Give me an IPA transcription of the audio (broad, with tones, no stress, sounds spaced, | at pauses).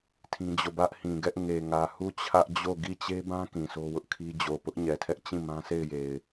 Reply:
tʰ ĩ˦ d͡ʑ o˦˨ b ä˦ ʔ h ĩ˨ ɡ ɛ˦ ʔ ŋ e˨ ŋ ä˨ h u˦˨ t͡ɕʰ ä˦ ʔ d͡ʑ o˦˨ ɡ i˦˨ t͡ɕ e˦ b ã˦ k ĩ˨ sʰ o˦ w ʊ˦ ʔ kʰ i˦ d͡ʑ o˨ p ʊ˦ ʔ ɲ ɛ˨ tʰ ɛ˦ ʔ t͡ɕ ĩ˦˨ m ã˦ sʰ e˦˨ ɪ̯ j e˨ ɪ̯